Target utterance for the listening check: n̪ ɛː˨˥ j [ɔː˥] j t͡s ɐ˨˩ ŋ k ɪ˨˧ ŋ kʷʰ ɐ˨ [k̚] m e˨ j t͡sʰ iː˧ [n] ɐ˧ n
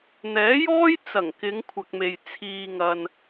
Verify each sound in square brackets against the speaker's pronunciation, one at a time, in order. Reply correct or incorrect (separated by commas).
correct, correct, incorrect